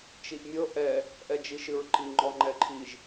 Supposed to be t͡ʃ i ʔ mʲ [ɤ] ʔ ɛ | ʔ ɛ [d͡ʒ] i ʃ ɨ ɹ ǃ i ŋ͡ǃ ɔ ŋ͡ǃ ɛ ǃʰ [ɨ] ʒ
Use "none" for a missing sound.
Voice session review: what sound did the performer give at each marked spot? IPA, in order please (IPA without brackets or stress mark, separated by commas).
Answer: ɤ, d͡ʒ, i